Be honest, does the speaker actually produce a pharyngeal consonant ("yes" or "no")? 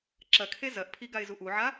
yes